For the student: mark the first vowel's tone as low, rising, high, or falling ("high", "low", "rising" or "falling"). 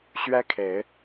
high